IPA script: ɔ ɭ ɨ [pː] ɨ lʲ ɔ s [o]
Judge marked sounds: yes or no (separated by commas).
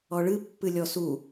yes, no